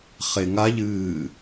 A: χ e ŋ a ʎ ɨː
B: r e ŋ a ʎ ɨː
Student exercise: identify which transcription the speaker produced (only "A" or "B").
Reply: A